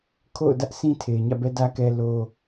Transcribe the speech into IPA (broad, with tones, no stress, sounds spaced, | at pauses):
kʰ o̰˦˨ ʊ̯ d ä˦ ʔ sʰ ĩ˦ tʰ e˨ ɪ̯ ɲ ä̰˦˨ b ɛ˦ d ä˦ k ɛ˦ l o˦